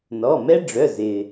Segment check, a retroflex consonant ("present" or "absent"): present